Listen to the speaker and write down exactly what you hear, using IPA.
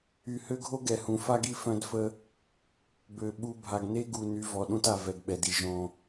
y˨ h ø˦ ɡʱ o˦ ɡ ɛ˨ h ũ˨˦ f a˦ ɡ i˦ f œ̃˦ d f ə˦ | b ø˨ ɓ u˨ bʱ a˨ ɡ n e˦ ɡ u˨ n y˨˦ v ɔ˨ ɗ ũ˦ t a˨ v ɛ˨ ɡ ɓ ɛ˨ d i˨ ʒ õ˦

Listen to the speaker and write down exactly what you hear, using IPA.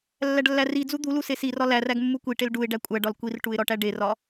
lː æ ɖ lː æ r i d͡z u d̪ u l u s e s i r ɒ l æ r æ ɡ mː u kʷ i ʈ e l ɖ u ɪ̯ ɖ æ kʷʼ æ ɖ ɒ l kʷ i r ʈ u ɪ̯ ɾ ɒ ʈ æ ɖ e r ɒ

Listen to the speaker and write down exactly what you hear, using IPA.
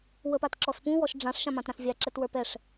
w ə p a t ǁ ɔ s p ũ w ɔ ʃ ɖ͡ʐ ã ʂ ʃ ã m ã t ɾ ã s vʲ a ǁ ɛ t w ə˞ p ɛ ʂ

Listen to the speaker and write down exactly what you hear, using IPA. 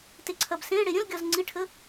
t e ǀʰ ɐ b s ẽ ɽ e ɾʲ ə̃ l ɡʲ ɒ z ŋ͡ǀ i ʈʰ ə

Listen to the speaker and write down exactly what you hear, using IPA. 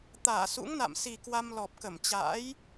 t̪ aː˧˩ s ṵ˧˥ ŋ n a̰˧˨ m s i˨˩ k w a˧ m l ɔ˨˩ p̚ k ə˧˩ m t͡ɕ a̰ː˧˥ j

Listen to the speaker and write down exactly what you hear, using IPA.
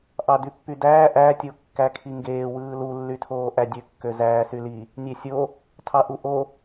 ʔ ɑ d y pː y d æː ʔ æ tʲ o kː æ kʰ i ŋ ɡ eː w ɯː l u lː y tʰ oː ʔ æ dʲ ø kː ø z æː s y l i | nʲ e sʲ o | tʰ ɑ ʔ u ʔ o

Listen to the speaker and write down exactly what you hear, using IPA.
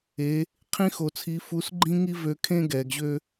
e˧˥ | qʰ ĩ˥ x o˧ t͡sʰ i˧˥ f u˧˥ s ɡ͡ǃ ĩ˥ ŋ i˥ v ø˧˥ kʰ ẽ˥ ɡ ɛ˩˧ ɡ ʑ ø˥

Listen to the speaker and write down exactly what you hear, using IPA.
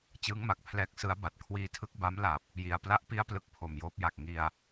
t͡ɕ ɯː˦˥ ŋ m a˨˩ k̚ pʰ l ɛː˦˥ k̚ s ɯ˦˥ a̯ b a˨˩ t̚ kʰ w iː˧ tʰ ɯ˦˥ k̚ b a˦˥ m l a˨˩ p̚ | j i˧ a̯ p l a˦˥ ʔ p i˦˥ a̯ p l ɯ˨˩ k̚ pʰ o˧ m j oː˦˥ p̚ j a˨˩ k̚ ŋ i˧ a̯

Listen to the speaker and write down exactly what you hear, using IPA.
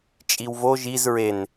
t͡ʃʼ i w v o ʒ i z ɹ e n

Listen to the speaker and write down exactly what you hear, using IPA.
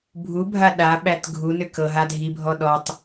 bʱ u bʱ a ɗ a ɓ æ t ɡʱ u n ʏ k ɤ ɦ a dʱ i bʱ ɔ ɗ ɔ tˤ

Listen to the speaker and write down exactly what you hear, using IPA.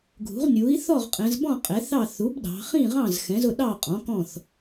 ɡʱ ṳ˩˥ ʁ nʲ u˩˥ i̯ θ ɔ˥˨ ʁ qʼ ɛ̃˩˧ z b ɔ̃˥˨ qʼ ɛ˩˥ θ ɑ˥˨ θ u˩˥ b ɗ ɑ̤˩˧ χ ĩ˥˨ ʁ ɑ̃˥˨ z x ɛ̃˩˥ z ʊ˥˨ ɗ ɑ˥˨ qʼ ɔ̃˩˥ k ɔ̃˥˨ θ

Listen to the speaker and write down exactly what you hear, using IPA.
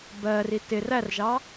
b ɜ r i t ɪ r æ r ʒ ɑ

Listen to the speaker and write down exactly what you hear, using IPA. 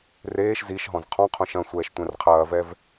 r eː ʃ z i ʃ ɦ ɔ̃ z qʰ ɔ̃ qʰ õ ʃ ɐ̃ sʷ ɛː ʃ tʷ ɛ̃ r qʰ ɐː v ɛ v

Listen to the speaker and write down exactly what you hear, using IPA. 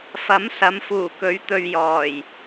f ɐ˨˥ m s ɐ˨˧ m f uː˨˩ k ɵ˨˧ ɥ t̪ ɵ˨ ɥ j ɔː˨˩ j

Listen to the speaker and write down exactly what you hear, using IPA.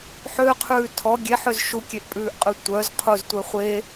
ħ ø qʰ ʉː tʰ ɔ ɡʲ e ħ ø z ʃ u kʲ e ʔ pʼ ʉː ʔ qʼ ʉ tʷ œ z qʰ u z tʷ ɛ χʷ e

